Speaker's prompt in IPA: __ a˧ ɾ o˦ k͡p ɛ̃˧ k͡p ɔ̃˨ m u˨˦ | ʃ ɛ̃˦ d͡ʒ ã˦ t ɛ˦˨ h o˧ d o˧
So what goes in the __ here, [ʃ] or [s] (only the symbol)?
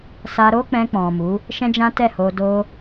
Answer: s